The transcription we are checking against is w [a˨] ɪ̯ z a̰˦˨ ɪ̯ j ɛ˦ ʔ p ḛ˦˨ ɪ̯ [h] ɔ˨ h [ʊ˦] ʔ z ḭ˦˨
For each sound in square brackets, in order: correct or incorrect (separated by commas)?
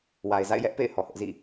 correct, correct, correct